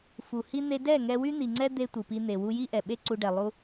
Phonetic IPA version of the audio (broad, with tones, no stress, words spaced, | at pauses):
fu˨hi˦ n̪e˧dɛ˦˨ ŋɛ˧wy˦n̪i˨ŋ͡ǀɛ˦ d̪e˦tʷɯ˨pi˧n̪e˨ wu˧ ji˦ʔɛ˨ɓe˦ ǀu˧ɖɛ˨lˠu˦